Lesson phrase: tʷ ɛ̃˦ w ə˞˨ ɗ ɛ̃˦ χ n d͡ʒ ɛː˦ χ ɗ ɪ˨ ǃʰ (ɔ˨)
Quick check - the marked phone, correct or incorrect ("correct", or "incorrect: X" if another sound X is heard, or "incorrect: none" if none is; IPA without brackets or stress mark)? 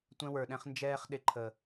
incorrect: ə˨